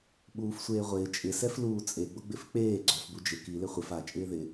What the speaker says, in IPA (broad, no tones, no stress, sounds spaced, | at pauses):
ɓ uː f sʷ eː ʁʷ ɪː t͡ʃʼ ɪ s ɛ f l uː t͡sʼ e ɡ͡b ʊ ɡ͡b ɪ f k͡p eː ɡ͡ǀ ɔ f b u d͡ʒ ɪ k i l ɪ χʷ ɪ f a t͡ʃʼ ɪː ð ɪ